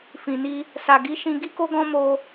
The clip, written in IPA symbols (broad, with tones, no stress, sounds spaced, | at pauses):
f ĩ˨ n i˧ | s a˨ ɡ i˨˦ ʃ ĩ˧ ɡ i˦ k o˦ ɡ ɔ̃˦ m o˧